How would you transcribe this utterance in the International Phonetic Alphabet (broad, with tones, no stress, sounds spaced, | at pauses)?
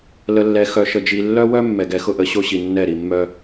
l ə˨ lː ɛ˨ x œ˨ ʃ ə˨ d͡ʒ i˨ lː œ˦ w œ˦ mː ɛ˨ ɡ ɛ˨ x ʊ˦ ʔ ə˨˦ ɕ o˦ ɕ i˨ nː ɛ˦˨ ɾ i˨ mː œ˦